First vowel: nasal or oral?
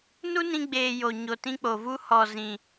oral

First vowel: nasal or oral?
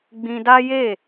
nasal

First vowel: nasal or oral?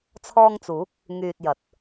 oral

